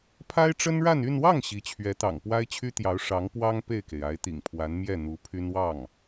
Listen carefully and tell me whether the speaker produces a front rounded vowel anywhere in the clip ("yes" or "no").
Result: yes